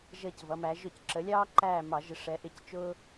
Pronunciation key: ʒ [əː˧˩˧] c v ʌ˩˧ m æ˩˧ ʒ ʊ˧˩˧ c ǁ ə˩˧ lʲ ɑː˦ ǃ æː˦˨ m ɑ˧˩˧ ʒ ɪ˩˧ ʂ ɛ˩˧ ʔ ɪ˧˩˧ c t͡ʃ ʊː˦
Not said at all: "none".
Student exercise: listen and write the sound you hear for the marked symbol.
əː˦˨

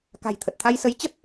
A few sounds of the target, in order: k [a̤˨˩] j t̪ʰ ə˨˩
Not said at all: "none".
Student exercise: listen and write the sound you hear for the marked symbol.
a̤˨˩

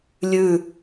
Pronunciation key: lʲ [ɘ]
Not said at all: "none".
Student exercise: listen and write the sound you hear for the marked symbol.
ʉ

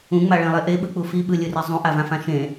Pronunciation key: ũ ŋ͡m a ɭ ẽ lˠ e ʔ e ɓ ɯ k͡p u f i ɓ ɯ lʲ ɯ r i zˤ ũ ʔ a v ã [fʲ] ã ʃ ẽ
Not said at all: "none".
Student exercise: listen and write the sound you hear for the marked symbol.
f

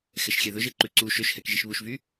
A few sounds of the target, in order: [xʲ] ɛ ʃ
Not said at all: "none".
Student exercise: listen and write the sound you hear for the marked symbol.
x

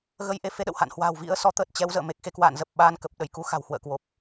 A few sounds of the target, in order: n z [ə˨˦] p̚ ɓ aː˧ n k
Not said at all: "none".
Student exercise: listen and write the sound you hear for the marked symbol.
ə˨˩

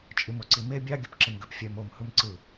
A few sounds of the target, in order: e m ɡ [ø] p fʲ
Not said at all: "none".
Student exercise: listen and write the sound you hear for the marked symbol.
ø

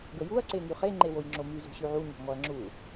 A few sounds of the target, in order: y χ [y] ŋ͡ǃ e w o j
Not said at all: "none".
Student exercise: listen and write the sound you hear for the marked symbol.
e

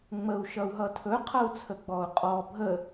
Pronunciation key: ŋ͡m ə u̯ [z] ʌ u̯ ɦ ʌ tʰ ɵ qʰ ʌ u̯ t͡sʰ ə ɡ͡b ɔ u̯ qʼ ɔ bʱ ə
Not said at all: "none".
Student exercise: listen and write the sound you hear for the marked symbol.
ʃ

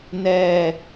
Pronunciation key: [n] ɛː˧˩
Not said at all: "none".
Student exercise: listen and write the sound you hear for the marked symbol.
n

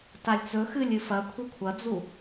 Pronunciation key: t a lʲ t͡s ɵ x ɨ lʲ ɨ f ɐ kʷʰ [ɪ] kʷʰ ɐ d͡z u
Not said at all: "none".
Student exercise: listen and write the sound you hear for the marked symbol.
i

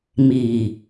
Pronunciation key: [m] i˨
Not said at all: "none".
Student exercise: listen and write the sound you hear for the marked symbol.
m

